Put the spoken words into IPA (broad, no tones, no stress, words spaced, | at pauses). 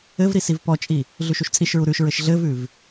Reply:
ɘvɾi sivpɔt͡ʃʼi | ɮʉʃuʃt͡sʼiʃɹu ɾʉʃɹɘʃ ɮɘvʉv